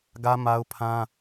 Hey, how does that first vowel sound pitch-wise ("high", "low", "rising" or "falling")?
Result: high